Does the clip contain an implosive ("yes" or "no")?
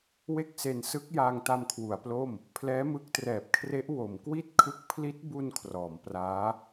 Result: no